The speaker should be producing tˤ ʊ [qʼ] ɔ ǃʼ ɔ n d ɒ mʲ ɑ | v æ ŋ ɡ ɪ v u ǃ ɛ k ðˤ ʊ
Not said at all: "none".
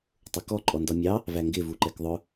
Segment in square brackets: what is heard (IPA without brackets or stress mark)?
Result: k